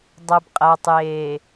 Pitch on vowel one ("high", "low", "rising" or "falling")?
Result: low